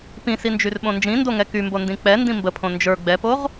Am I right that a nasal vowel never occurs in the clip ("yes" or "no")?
no